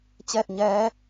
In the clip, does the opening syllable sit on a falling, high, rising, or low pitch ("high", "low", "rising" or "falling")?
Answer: falling